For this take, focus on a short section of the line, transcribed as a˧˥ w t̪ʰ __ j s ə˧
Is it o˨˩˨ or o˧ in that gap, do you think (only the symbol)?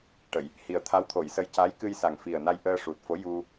o˨˩˨